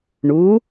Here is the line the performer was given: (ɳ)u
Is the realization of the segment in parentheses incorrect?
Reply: no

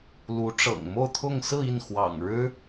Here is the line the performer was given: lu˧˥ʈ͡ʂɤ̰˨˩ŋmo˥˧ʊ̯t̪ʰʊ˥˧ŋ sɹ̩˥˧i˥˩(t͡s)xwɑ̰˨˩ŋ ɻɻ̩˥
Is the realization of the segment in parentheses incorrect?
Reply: yes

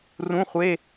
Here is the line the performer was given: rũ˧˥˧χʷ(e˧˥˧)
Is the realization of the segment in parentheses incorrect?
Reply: no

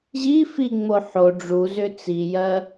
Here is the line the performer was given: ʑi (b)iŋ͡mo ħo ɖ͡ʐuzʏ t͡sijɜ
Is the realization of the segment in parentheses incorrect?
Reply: yes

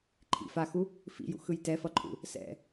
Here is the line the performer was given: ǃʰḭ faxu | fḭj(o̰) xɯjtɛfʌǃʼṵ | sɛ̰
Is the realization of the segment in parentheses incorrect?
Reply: yes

